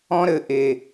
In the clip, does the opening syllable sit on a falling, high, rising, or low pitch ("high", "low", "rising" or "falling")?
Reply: high